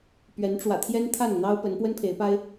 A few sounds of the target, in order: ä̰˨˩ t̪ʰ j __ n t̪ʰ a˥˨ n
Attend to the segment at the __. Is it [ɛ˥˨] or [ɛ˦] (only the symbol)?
ɛ˦